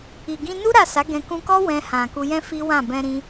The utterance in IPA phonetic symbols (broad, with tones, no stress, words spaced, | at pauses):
i˨ɡĩ˧nu˦ ɾa˦˨sa˨˦ɡɛ̃˧ kũ˧kɔ˦ wɛ̃˧ hã˨ku˧jɛ̃˦ fi˦wã˦˨ bɛ̃˧ɾĩ˧